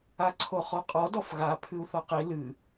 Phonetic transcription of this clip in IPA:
a ǀʰ o χ ɔ qʼ ɔ d ɔ f ɣ a pʰ ɨ u̯ θ ɔ q i l ɨ

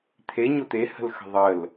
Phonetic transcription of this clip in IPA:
t̪ʰ e ɲ o t̪ e h ə̤ l x ə̤ ðˤ ə l

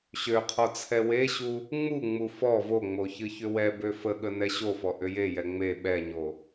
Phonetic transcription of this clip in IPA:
ɕ ø qʰ ɔ t͡sʰ ɛ w e ɕ u | ŋ͡m u ŋ͡m u f ɔ v o ŋ͡m o ç ɨ ç ʏ w ɛ b ø f ə ɠ ə n ɛ ɕ o f ɔ ʔ ʏ j e j ɛ ŋ͡m e ɓ ɛ ɲ o

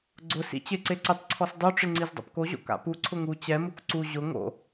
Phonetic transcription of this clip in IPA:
ɡ͡ǀ ʊ s ḭ t͡ɕ ɪ ǀ e ǀ ɪ tˤ ǀʰ ɔ s dˤ o ʈ͡ʂ ɪ ŋ͡ǀ i z dˤ o̰ p k o ʑ o̰ k a̰ p u ǀʰ ʊ ŋ u t͡ɕ ɛ m u k ǀ u ʑ ʊ ŋ o̰

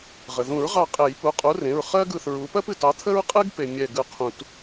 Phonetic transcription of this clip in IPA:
ʁ ə˩ ð ũ˨˩˦ ɹ ʁ ɑ˧˩ qʼ e˨˩˦ j p u˩˧˩ qʼ u˨˥ r ẽ˩˧˩ ɹ χ ɜ˥ ɡ ɯ˧˩ θ ɹ u˨˥ p ɜ˥ p ɨ˩ t ɑ˨˥ t̪ʰ ə˥ ɹ qʼ ɨ˥ ɡ p e˩ mʲ ɛ˧˩ ɡ ɯ˧˩ qʰ ũ˨˩˦ t

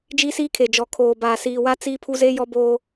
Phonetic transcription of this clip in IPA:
d͡ʒ iː˦ s iː˦ kʰ e˨ d͡ʒ ɔ˨ kʰ oː˨ b aː˨ s iː˨ w a˦ t͡s i˦ pʰ u˦ z e˦ j ɔ˦ b oː˦

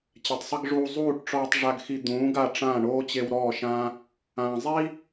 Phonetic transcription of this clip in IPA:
t͡ɕ ɛ˨ tˤ sˤ i˧ ɡ ʐ uː˧ zˤ uː˦˨ ʈ ʈ͡ʂ ɔː˧ tˤ ʐ a˧ ɡ x i˧ d̪ ũː˨˦ ɡ a˦˨ ʈ͡ʂ ãː˦˨ ɳ oː˦ t͡ɕ e˧ w ɾ ɔː˦˨ ʃ ãː˦ | ãː˨ zˤ i˦

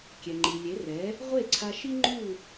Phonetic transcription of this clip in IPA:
kʲ ɛ˩ ŋ͡ǃ i˩ lʲ e˩˥ r ɛ˩˥ | ʁʷ e˥˩ ǀʰ a˧ ʃ i˥ ŋ͡ǃ u˥˩

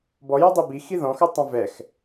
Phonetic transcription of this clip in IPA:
b ɔ j ɤ dˤ i b i x i ð ɔ̃ x ɤ tˤ ɛ̃ v ɛ x

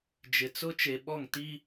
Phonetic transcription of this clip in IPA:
d͡ʒ ɪ˨ t͡s ʊ˦ t͡ʃ e˨ ɓ ɔ˦˨ ŋ t i˦

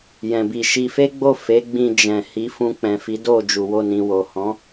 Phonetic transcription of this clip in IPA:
j ɛ̃˨ b i˨ ʃ i˧ f e˦ ɡ͡b o˦˨ f e˨˦ ɡ͡b ĩ˧ d͡ʒ ɛ̃˨ h i˨˦ f ũ˧ k͡p ɛ̃˨ f i˨˦ d o˦˨ d͡ʒ u˨ w o˧ n ĩ˨ w o˨ h ɔ̃˨˦

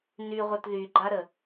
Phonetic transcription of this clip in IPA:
n y ʁʷ œ t ð y ɡ͡ǃ a ɾ ə

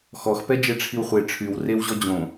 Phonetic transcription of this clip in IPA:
x ɔ x p ɛ d͡ʒ e ʈ͡ʂʰ i w χʷ e ʈ͡ʂʰ y w r e w ʑ ɔ d͡ʑ õ

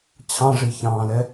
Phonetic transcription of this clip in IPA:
t͡ɕʰ ɑ̃ ʐ i ç ɑ̃ː l ɛ

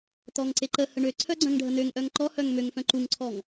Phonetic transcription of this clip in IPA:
t̪ ɔ ŋ ǀ e ǃ ə h ə ɳ ø ǀʰ œ ɡ͡ǀ œ̃ ŋ ɖʱ ə n̪ ø ŋ ʔ œ ŋ ǃ ɔ h œ ŋ m ø ŋ f œ̃ ǃ u ŋ ǀʰ ɔ ŋ

